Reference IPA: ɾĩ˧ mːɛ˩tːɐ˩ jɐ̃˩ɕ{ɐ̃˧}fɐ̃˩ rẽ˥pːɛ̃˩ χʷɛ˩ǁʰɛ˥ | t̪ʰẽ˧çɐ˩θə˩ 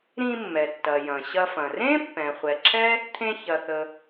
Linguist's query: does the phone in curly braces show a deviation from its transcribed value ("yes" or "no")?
yes